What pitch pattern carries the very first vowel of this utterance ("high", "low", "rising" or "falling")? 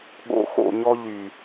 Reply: low